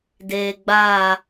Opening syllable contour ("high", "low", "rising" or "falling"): low